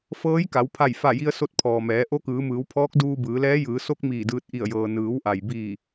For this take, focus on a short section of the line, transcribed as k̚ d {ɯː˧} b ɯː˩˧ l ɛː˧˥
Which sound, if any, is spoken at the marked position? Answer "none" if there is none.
uː˧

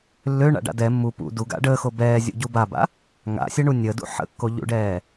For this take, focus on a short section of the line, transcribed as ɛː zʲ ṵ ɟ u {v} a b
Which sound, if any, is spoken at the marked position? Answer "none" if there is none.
b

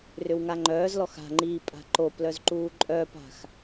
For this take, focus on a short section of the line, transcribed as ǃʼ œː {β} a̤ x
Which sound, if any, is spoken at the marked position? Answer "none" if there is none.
p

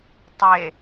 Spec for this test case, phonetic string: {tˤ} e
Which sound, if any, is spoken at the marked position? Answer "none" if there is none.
tˤ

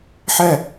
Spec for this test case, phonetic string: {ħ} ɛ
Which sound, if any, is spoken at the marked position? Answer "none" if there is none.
ħ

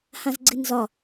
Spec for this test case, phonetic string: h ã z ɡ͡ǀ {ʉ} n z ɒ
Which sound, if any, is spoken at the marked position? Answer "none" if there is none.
ɨ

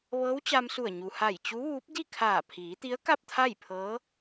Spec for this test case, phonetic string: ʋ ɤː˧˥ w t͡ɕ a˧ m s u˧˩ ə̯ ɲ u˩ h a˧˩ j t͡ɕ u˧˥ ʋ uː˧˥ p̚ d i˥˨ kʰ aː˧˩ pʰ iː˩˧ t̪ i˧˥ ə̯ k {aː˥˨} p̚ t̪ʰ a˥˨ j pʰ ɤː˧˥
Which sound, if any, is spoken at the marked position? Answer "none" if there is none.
a˥˨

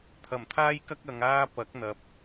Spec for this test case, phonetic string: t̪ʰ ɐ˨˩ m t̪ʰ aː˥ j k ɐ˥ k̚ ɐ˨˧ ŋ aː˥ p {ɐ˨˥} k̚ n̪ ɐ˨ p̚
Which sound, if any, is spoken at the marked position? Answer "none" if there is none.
ɐ˨˥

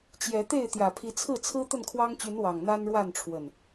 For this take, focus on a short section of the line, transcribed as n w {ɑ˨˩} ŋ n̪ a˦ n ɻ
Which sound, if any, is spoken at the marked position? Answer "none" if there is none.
ɑ˨˩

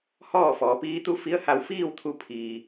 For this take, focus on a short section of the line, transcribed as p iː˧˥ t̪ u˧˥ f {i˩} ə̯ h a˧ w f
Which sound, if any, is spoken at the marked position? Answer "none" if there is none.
i˧˥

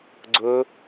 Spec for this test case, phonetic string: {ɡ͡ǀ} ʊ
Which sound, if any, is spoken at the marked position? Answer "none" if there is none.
ɡ͡ǀ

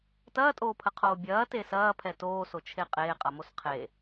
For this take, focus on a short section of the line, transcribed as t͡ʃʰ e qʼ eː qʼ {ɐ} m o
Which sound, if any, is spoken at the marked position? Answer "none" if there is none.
ɐ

